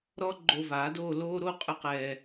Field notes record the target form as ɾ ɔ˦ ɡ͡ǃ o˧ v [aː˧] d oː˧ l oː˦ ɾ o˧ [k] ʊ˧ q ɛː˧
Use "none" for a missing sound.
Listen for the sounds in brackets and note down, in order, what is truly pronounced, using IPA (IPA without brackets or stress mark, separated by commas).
aː˨˦, qʼ